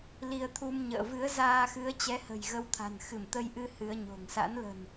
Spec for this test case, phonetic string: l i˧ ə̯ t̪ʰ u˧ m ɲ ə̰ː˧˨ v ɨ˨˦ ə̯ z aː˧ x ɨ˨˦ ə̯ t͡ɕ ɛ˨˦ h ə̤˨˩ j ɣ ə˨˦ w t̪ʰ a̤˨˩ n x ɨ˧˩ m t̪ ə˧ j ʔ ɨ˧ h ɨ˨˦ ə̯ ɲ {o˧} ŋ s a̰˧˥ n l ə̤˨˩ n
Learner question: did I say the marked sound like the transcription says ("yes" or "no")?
no